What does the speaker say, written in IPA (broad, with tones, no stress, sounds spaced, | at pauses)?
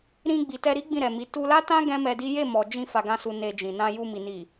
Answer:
ɾ ĩ˧ ɡ͡b i˨ t ɛ˧ ɾ i˦ ɡ͡b ĩ˦˨ ɾ ɛ˨ m i˨˦ t u˧ l a˦ t ã˦ ɡ ɛ̃˦ m ɛ˧ d i˦ j e˦˨ m ɔ˨ d͡ʒ ĩ˧ f a˧ ɡ ã˦ s u˧ n e˧ d͡ʒ ĩ˨ n ã˧ j u˧ m i˨ n i˨